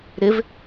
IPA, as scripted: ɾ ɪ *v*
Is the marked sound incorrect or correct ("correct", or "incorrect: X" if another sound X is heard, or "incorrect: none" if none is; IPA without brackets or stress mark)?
correct